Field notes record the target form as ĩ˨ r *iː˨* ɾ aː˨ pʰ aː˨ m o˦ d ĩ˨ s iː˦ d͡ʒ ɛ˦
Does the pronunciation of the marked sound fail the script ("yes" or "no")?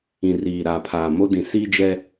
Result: no